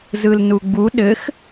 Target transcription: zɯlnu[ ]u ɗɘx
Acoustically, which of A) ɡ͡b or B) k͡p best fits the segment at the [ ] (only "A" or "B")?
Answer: A